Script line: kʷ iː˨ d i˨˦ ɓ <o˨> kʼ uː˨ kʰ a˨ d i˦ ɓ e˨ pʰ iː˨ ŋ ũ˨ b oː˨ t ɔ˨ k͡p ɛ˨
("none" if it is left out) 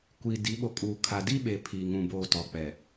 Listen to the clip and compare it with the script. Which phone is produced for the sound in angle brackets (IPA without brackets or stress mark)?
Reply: o˨